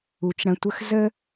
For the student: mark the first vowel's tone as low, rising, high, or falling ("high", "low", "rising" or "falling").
low